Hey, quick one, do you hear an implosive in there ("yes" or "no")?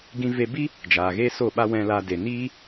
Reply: yes